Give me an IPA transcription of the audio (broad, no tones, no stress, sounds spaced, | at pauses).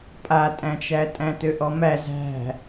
pʼ a tʼ æ̃ t͡ʃ æ tʼ æ̃ t ø ʔ ɔ m æ z æ̤